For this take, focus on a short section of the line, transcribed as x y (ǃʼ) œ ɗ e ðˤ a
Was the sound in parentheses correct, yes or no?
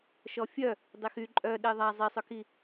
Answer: yes